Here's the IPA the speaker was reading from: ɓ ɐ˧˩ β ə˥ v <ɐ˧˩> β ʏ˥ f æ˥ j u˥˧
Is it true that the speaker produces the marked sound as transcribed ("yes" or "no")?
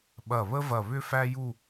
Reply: yes